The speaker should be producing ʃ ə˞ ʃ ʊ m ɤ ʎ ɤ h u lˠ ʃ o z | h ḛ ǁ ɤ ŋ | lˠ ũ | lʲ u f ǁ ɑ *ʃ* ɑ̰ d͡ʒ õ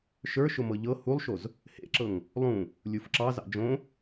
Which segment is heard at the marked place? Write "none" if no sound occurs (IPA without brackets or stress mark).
z